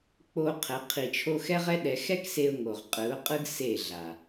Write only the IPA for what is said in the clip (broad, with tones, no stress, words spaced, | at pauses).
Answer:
k͡po˧ qʰɛ˨˦qʰi˧t͡ʃʰo˦ xɛ˦ʁɛ˦ɗɛ˧ xɛ˦kse˧ʊ̯ ŋo˨ʁqʼɯ˨˦ʊ̯qʼɯ˦ɡ se˦˨ɮa˨